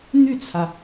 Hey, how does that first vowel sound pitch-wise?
falling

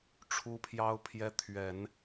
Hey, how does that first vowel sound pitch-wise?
high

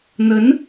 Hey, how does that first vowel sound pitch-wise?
rising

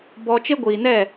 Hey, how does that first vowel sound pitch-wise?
high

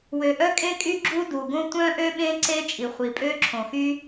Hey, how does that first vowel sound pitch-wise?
low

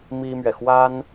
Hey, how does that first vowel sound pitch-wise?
high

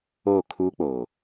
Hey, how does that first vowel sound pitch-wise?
falling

